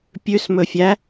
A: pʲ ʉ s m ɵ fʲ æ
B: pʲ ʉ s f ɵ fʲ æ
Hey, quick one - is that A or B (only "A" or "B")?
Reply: A